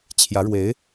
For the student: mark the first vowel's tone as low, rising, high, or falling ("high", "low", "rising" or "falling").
rising